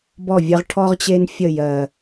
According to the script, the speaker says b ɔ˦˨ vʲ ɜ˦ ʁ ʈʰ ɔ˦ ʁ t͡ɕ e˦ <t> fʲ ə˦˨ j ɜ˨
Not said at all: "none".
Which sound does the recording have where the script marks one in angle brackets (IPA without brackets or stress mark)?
n